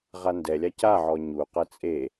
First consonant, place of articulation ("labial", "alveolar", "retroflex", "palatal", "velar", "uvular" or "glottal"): uvular